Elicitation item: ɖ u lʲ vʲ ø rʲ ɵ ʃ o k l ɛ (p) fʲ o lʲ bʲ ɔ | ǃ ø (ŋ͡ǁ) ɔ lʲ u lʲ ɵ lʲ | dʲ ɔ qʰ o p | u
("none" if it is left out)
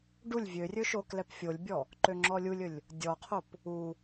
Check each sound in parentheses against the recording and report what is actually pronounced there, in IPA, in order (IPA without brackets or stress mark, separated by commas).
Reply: p, ŋ͡ǁ